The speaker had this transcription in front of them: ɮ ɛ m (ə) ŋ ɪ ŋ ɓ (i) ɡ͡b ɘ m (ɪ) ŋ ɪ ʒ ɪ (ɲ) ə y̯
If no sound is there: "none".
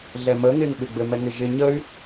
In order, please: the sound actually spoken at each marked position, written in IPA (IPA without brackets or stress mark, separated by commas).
ə, ɪ, ɛ, ɲ